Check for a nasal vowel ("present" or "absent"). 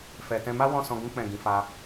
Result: present